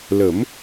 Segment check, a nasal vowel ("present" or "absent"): absent